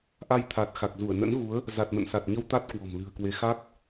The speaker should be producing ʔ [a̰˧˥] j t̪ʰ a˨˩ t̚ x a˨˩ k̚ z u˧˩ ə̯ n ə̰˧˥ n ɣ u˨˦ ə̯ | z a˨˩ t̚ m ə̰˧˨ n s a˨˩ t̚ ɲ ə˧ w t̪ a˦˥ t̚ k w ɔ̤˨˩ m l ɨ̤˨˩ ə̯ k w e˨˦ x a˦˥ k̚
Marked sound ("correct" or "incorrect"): incorrect